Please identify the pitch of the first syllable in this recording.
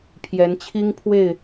rising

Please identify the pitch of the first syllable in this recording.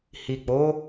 low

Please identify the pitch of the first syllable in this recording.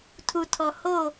low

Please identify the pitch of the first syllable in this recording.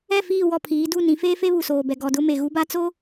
falling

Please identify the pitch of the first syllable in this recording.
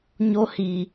high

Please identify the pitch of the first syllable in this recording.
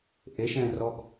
rising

